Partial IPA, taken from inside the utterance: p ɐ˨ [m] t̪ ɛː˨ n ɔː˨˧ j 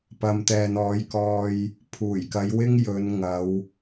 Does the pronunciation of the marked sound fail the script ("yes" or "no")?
no